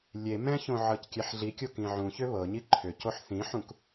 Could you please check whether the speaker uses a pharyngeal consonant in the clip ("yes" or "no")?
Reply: yes